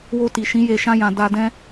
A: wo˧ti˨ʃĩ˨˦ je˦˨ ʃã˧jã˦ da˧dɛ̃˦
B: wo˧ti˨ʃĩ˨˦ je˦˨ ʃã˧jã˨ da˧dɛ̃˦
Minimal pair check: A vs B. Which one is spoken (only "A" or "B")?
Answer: B